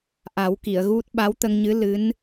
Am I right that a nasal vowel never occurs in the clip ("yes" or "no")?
yes